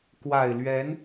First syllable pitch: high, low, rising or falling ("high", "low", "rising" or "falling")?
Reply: low